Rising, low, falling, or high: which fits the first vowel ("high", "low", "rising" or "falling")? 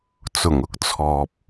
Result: low